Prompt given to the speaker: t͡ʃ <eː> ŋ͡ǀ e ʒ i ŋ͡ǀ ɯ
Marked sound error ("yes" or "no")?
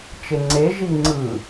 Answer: yes